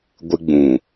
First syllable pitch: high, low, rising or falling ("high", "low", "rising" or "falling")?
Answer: high